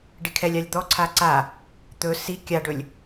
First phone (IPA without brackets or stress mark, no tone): ɖ